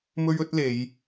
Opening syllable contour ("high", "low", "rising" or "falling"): high